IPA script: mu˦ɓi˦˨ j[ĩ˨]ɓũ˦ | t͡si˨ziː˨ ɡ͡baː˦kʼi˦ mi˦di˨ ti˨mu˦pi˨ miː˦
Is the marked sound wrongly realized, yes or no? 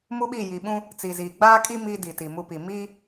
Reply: yes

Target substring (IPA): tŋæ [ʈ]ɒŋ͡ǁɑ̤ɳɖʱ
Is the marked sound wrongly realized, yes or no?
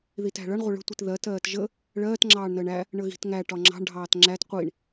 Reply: no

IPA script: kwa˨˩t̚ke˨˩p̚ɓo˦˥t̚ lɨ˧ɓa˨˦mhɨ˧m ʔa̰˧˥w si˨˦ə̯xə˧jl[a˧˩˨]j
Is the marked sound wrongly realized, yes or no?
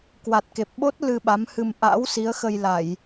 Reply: no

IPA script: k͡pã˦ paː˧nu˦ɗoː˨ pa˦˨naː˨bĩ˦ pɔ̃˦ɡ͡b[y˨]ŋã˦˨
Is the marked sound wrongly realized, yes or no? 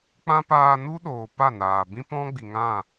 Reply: yes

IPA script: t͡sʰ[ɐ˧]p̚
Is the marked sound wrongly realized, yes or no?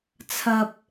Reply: no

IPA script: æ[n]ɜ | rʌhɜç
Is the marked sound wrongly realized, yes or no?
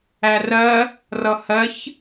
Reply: yes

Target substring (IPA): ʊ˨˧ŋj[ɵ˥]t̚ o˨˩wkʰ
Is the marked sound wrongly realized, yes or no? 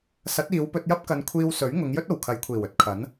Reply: no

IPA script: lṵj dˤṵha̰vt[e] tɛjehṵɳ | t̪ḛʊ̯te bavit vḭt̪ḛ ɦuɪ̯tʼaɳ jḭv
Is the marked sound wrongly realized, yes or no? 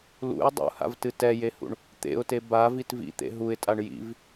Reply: yes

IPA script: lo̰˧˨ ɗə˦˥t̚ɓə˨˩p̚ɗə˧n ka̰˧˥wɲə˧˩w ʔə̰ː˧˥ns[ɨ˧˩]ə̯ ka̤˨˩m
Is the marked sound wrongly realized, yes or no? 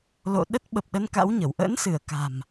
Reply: no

